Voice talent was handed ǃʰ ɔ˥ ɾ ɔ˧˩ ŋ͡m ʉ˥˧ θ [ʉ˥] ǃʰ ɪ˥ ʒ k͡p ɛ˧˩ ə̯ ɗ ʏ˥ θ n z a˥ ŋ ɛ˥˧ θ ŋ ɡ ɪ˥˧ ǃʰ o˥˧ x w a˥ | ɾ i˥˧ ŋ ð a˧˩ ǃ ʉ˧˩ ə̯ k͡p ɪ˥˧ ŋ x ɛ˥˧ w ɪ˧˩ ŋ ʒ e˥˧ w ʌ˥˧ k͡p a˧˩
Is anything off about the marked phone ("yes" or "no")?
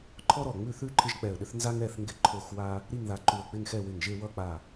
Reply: no